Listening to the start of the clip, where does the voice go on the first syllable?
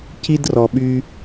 high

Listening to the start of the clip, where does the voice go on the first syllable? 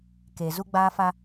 low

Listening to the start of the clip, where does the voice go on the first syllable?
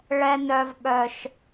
high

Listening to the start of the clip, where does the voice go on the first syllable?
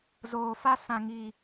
low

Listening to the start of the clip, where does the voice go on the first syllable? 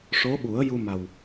rising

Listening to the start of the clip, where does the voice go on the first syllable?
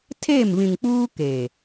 falling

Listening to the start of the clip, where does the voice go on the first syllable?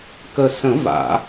low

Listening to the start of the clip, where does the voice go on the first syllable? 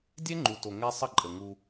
high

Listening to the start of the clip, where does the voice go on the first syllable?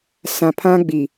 low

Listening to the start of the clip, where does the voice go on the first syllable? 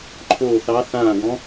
falling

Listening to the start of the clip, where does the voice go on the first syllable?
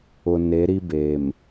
low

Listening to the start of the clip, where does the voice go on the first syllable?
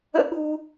high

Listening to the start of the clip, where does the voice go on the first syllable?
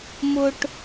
high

